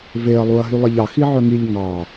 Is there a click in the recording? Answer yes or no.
no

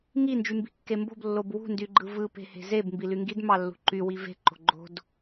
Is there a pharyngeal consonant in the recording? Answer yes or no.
no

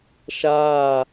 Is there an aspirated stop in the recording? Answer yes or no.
no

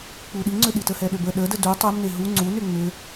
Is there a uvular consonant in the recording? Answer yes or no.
no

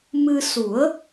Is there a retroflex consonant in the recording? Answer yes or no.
no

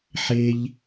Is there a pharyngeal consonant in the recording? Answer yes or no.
yes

